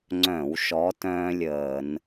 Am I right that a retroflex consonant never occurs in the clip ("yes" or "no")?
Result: yes